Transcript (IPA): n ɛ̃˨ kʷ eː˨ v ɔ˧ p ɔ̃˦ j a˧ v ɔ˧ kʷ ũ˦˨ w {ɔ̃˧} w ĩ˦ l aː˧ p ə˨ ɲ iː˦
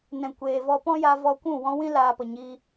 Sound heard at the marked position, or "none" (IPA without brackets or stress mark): ɔ̃˧